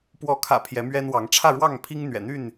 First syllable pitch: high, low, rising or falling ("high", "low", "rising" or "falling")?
rising